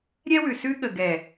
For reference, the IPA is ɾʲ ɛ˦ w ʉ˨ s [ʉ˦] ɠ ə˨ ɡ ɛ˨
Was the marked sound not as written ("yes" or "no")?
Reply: no